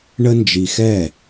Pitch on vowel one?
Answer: high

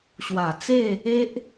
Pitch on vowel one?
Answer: low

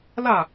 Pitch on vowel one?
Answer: falling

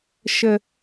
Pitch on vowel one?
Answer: high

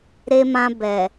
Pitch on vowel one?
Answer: low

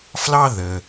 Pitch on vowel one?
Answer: high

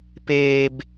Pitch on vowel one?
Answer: low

